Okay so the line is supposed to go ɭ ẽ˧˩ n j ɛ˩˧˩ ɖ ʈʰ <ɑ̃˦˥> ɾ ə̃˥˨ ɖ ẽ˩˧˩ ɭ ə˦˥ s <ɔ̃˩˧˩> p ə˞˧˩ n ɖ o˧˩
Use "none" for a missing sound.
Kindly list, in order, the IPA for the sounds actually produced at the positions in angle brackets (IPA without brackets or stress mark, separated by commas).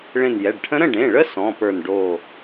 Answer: ə̃˦˥, ɔ̃˩˧˩